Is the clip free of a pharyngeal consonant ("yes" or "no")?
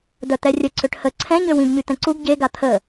yes